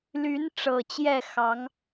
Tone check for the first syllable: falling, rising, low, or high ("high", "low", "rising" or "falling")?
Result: rising